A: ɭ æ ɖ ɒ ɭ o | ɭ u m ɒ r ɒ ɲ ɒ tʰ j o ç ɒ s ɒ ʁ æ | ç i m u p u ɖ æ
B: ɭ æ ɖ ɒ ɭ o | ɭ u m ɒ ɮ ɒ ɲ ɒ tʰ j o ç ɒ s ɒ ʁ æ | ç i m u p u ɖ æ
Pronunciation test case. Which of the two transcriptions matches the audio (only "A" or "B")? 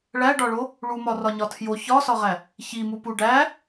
A